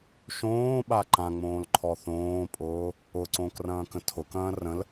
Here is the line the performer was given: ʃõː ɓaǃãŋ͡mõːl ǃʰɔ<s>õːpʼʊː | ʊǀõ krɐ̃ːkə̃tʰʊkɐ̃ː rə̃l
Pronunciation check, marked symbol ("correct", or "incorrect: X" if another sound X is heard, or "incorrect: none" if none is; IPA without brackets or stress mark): incorrect: θ